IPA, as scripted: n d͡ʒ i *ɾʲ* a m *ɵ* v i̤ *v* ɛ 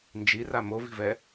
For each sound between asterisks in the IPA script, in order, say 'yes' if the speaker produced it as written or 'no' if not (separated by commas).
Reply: no, no, yes